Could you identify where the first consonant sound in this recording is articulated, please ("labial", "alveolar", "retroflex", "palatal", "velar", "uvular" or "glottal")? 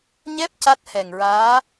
palatal